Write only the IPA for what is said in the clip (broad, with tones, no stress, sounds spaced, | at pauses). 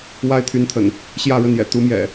w a˦ ɪ̯ t̪ʰ y˨˦ n t̪ʰ ə̰˨˩ n | ɕ j ä˥˨ ɻ ə˥˨ n j ɛ̰˨˩ t̪ u˨˦ m j ɛ̰˨˩